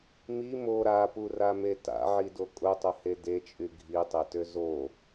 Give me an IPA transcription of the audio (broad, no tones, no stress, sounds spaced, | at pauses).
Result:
m i m o ɾ a p u r a m e t a̰ ʕ i d o kʼ ʊ tˤ ʊ h e d e t͡ʃʼ y ɡʱ i tˤ e t ø z o